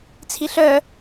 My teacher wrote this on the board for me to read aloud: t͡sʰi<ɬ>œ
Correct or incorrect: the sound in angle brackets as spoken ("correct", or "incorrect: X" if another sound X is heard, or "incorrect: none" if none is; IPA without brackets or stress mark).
correct